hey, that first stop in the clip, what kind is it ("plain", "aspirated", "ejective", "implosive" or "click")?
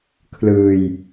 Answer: aspirated